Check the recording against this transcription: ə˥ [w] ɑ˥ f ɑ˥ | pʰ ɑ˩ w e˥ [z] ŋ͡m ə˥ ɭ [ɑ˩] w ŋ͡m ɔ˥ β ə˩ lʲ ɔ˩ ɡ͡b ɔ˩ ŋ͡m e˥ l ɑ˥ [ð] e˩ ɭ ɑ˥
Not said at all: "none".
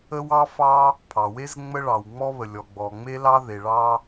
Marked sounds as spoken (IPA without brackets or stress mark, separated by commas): w, z, ɑ˩, ð